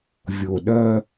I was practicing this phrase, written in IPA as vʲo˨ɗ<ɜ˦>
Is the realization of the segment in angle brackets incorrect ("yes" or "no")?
no